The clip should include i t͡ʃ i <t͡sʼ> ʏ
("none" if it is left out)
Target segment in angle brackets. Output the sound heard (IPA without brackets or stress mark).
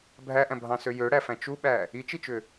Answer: t͡ʃ